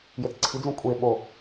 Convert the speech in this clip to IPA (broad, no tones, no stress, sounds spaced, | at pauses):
j e t͡s ǀʰ i d͡z ũ kʷʼ e ɓ o